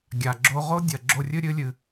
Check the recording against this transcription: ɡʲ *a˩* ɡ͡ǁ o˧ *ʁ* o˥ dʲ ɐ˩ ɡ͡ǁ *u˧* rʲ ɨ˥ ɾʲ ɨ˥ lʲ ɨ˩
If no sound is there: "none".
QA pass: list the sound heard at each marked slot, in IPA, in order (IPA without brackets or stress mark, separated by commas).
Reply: a˩, ʁ, o˧